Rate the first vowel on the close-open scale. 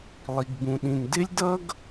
close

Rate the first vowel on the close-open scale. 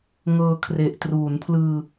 mid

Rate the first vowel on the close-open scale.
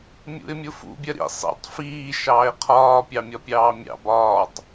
close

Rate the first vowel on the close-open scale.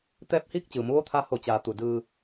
mid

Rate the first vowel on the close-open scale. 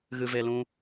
close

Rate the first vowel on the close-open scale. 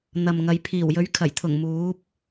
open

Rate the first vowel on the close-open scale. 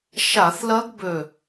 open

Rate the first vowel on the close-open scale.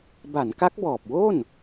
open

